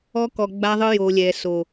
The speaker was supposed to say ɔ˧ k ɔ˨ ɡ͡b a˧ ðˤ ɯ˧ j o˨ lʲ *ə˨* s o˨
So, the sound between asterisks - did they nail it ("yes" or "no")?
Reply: no